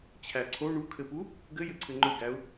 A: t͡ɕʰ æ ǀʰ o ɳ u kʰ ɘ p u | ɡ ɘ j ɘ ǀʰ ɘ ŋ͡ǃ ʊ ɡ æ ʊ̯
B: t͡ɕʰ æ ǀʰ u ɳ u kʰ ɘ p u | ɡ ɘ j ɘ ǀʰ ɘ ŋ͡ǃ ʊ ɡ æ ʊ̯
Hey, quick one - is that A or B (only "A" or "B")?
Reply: A